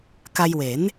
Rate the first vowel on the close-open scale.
open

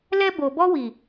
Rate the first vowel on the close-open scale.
mid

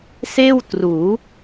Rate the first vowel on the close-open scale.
mid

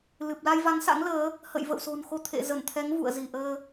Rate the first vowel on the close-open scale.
close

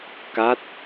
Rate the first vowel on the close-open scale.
open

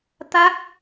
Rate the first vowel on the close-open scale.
open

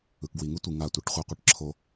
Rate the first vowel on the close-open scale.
close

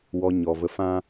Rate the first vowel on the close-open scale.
mid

